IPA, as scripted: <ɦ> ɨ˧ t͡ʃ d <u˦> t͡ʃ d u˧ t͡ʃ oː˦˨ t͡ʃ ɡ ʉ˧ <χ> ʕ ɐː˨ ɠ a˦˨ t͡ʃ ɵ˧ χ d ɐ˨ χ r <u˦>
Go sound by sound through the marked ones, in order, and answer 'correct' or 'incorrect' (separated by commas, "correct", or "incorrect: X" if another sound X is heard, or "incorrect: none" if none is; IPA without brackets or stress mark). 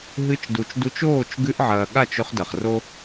correct, incorrect: u˨, incorrect: ʔ, incorrect: o˦